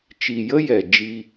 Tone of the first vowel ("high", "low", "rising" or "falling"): low